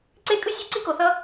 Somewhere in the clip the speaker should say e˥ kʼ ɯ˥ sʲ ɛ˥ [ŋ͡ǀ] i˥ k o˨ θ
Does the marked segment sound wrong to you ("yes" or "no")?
yes